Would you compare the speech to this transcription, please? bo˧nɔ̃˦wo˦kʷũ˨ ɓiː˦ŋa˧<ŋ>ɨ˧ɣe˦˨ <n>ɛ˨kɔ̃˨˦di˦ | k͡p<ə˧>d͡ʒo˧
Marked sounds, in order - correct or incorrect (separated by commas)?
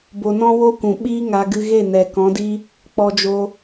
incorrect, correct, incorrect